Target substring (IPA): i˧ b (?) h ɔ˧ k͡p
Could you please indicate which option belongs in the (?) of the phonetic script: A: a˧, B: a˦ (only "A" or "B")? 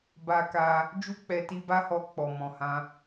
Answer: B